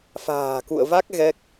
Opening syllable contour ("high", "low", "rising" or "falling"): low